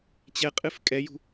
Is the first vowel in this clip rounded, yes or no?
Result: no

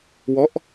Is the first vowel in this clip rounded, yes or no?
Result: yes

